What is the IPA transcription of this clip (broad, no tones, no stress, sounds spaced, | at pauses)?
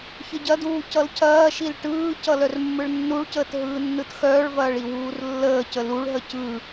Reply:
ç ə ɟ ɐ d uː c ʌ l cʰ ɐː ʃ i l ʈ ɯː c ʌ l œ r mː ɯ ɭ nː u ɭ c əː t ɦ ɯː nː ɯ t x œː ɭ v ɐː ɭ i w uː r lː əː c ə l u ɭ ɦ ə c ɯ